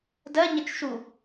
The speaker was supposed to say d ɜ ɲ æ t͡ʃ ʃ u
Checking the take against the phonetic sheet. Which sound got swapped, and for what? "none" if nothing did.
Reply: æ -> ə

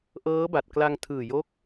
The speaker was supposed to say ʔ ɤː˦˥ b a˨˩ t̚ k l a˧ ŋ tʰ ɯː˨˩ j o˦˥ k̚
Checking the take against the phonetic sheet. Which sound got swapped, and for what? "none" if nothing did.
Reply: none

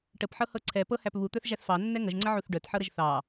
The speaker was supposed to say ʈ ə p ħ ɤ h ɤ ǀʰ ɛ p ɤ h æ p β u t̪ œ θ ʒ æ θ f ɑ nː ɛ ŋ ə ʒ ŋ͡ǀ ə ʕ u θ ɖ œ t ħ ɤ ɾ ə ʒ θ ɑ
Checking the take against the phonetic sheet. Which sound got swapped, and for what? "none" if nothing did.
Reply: none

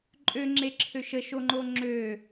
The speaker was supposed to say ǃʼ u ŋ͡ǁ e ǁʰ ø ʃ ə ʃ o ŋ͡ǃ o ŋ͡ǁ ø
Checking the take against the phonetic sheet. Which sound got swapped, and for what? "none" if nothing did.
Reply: u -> ø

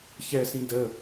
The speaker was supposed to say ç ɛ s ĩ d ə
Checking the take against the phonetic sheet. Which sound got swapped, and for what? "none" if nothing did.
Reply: none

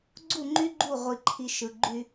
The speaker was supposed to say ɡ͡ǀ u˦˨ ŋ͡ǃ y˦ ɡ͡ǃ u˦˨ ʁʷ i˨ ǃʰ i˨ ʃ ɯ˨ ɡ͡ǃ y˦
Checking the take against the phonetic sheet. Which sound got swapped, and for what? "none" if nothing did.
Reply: none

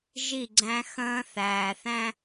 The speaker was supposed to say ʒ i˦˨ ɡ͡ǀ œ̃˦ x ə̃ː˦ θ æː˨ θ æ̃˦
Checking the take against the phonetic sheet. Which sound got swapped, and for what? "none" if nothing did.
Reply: œ̃˦ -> æ̃˦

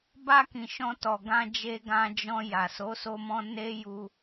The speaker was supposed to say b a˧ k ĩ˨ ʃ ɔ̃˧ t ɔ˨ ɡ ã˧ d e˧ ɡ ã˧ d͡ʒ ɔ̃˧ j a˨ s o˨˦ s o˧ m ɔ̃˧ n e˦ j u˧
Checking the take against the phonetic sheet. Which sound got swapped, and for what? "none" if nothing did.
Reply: d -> d͡ʒ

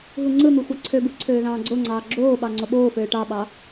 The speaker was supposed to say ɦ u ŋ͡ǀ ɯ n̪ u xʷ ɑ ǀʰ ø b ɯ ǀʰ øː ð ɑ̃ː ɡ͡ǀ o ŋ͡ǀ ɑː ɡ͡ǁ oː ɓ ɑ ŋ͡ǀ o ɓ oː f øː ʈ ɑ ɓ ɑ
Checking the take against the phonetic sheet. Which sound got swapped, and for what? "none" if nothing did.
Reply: none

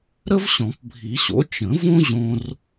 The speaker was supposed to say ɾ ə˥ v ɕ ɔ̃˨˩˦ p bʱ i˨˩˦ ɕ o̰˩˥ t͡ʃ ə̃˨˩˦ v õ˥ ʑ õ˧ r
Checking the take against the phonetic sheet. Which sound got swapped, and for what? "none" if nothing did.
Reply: none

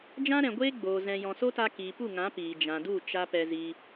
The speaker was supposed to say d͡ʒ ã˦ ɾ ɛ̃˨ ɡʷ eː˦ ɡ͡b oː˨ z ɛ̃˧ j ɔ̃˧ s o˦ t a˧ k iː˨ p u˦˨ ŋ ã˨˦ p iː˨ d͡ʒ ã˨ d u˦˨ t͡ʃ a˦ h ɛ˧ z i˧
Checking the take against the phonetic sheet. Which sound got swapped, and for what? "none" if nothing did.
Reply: h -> p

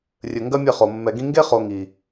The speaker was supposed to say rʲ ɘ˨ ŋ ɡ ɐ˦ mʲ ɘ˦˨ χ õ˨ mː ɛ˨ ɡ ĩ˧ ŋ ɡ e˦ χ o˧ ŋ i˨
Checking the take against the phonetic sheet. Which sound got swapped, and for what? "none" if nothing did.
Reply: õ˨ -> o˨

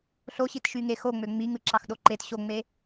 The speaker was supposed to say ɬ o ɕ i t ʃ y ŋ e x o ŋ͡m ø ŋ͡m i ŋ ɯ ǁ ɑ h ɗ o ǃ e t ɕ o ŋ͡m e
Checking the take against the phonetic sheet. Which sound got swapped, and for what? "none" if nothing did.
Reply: h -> x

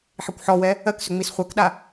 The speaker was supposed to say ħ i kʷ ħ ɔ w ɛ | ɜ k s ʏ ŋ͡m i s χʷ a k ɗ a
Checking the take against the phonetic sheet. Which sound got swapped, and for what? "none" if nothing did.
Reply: none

